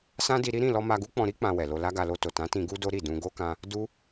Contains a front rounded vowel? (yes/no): no